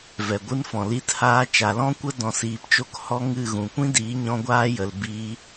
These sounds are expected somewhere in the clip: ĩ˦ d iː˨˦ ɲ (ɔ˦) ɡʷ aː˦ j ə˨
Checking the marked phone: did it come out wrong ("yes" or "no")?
yes